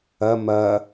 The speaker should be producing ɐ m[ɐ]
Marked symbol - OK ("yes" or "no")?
yes